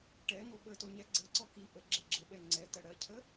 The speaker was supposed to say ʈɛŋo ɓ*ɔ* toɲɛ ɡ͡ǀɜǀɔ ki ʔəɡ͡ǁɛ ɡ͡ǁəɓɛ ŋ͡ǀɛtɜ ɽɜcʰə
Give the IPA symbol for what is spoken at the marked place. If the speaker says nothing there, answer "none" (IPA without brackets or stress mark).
ə